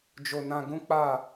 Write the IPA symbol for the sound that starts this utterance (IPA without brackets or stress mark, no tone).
d͡ʒ